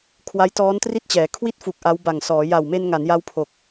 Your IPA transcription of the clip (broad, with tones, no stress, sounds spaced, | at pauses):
kʰ w a˦˥ j t ɔː˦˥ n t r i˥˩ t̚ t͡ɕ ɛː˩˦ kʰ w i˥˩ t̚ f u˨˩ k̚ ʔ a˦˥ w b a˨˩ ŋ s ɔː˩˦ j a˨˩ w m e˧ n ŋ a˩˦ n j a˦˥ w pʰ o˨˩ k̚